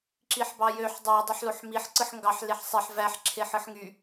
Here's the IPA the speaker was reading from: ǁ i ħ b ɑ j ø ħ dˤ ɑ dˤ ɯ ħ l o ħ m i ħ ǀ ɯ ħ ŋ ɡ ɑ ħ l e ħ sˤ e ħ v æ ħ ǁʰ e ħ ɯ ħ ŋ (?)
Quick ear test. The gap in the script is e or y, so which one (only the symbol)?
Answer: y